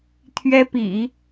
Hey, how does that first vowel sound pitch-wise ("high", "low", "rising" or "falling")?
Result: high